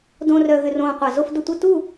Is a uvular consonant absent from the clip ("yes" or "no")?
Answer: no